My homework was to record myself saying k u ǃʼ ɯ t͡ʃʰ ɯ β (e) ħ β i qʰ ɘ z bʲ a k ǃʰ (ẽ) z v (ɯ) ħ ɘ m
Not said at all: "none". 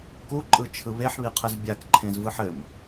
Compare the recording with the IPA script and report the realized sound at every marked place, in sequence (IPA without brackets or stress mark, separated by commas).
e, ẽ, ɯ